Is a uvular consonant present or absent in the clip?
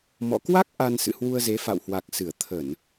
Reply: absent